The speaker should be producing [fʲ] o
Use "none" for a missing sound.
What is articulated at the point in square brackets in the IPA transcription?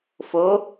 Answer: f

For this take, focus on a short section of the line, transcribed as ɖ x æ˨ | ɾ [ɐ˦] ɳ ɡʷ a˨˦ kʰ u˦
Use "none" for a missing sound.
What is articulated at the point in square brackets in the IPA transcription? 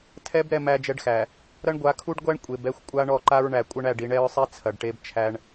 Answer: ɐ˦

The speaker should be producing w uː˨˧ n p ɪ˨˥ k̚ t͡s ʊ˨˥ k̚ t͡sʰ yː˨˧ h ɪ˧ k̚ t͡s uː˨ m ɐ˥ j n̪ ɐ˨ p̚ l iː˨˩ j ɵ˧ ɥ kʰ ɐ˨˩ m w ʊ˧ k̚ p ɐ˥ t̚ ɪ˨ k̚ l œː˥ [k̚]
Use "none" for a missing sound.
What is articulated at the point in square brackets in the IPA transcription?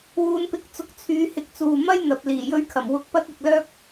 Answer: k̚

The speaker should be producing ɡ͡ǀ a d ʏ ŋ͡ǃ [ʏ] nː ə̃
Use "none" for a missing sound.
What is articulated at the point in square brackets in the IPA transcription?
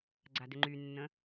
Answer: y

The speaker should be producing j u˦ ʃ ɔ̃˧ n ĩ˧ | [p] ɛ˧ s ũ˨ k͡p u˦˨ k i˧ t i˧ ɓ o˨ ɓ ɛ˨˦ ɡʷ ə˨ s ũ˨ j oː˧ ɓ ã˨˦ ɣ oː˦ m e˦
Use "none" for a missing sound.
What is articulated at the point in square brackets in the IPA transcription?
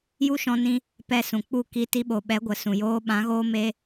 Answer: p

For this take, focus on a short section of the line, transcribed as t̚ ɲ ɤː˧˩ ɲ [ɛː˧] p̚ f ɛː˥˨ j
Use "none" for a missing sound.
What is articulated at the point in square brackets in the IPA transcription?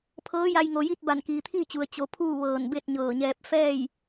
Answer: ɛː˧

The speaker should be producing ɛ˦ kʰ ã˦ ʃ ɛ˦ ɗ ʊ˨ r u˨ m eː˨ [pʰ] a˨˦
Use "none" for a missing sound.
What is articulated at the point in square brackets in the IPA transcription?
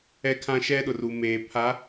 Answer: pʰ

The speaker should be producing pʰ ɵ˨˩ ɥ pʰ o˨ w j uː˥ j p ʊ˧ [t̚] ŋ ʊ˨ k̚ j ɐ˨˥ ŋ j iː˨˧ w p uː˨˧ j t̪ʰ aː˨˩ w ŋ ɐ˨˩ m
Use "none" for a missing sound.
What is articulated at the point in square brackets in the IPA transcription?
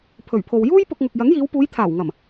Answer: k̚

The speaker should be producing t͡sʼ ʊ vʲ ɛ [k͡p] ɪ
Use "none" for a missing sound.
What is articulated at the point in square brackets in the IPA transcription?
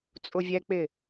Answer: k͡p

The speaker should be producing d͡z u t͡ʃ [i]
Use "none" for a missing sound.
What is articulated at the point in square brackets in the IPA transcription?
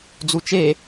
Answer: e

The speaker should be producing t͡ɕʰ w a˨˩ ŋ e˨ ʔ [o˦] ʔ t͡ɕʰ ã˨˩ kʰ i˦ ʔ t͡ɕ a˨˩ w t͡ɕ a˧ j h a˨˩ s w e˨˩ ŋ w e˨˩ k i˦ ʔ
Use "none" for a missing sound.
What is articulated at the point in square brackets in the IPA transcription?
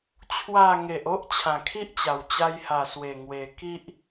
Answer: o˦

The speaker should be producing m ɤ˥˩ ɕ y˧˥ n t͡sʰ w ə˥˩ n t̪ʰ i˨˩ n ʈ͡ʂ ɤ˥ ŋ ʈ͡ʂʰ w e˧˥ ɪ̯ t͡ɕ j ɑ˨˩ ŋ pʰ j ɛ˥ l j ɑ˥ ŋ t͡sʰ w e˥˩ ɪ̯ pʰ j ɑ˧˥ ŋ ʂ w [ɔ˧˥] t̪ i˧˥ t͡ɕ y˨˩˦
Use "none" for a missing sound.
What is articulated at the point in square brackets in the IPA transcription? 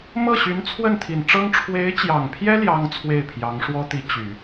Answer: ɔ˥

